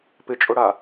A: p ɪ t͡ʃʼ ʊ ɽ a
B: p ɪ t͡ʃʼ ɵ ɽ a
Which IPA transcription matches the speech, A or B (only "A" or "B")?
A